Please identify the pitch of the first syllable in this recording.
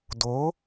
rising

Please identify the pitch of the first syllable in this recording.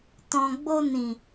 low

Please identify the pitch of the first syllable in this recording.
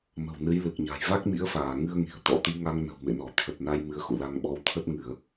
low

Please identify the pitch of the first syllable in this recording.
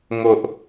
high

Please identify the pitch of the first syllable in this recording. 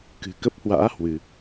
low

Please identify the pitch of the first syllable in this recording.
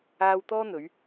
high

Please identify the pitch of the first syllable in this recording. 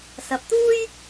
low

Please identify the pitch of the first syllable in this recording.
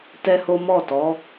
high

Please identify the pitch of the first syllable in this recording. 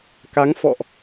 rising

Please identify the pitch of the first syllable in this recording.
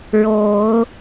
rising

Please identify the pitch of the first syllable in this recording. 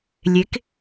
rising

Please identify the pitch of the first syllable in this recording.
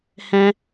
high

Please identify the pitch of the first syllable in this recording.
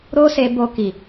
high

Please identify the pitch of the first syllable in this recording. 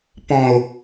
high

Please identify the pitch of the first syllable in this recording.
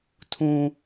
high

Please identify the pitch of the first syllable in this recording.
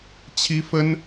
high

